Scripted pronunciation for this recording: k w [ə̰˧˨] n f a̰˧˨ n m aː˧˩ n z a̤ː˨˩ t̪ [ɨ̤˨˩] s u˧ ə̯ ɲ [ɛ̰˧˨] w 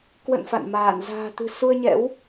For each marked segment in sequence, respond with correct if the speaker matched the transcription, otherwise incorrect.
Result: correct, correct, incorrect

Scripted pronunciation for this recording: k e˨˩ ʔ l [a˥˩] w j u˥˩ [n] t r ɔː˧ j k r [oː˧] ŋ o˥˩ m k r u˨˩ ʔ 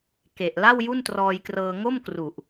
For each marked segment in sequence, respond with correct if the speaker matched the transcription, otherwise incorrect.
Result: correct, correct, incorrect

